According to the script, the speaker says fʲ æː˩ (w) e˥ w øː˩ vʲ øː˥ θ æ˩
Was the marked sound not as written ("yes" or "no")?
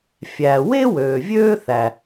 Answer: no